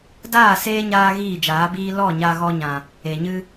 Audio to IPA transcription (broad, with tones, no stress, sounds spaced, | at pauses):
d aː˦˨ s eː˦ ɲ aː˧ ɣ iː˦˨ d͡ʒ aː˨˦ b iː˦ l ɔ˦˨ ɲ a˧ ɣ ɔ˧ ɲ ã˨ | e˨ ɲ ɨ˧